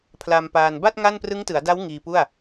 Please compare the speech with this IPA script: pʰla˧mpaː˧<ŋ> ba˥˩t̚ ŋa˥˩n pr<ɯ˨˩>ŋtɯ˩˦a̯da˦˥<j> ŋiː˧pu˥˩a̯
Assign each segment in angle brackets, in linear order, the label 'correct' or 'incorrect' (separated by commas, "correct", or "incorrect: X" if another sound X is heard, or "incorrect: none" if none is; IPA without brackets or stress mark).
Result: incorrect: n, incorrect: ɯ˦˥, incorrect: w